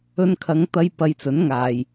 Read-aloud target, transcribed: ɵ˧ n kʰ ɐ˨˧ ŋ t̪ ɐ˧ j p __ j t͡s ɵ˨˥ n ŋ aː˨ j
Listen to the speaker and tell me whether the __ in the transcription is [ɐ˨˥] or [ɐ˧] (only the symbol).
ɐ˧